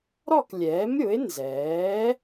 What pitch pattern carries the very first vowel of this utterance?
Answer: falling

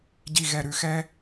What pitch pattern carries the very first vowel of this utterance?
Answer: low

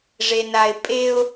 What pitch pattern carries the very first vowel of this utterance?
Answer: low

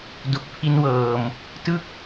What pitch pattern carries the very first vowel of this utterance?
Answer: low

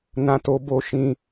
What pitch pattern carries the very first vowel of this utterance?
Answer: high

